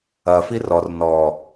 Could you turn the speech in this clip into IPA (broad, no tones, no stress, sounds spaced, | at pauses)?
ɐ f i r ɔ r n ɔ